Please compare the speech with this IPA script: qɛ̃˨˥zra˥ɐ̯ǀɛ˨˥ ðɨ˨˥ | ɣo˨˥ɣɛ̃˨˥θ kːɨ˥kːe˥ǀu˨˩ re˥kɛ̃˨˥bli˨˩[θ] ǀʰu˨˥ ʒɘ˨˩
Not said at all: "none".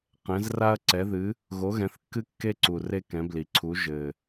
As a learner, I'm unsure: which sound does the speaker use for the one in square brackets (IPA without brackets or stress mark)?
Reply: none